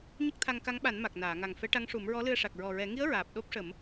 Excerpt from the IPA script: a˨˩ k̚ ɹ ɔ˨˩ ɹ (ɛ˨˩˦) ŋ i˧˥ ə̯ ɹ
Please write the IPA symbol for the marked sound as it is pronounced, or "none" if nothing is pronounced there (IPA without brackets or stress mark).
ɛ˨˩˦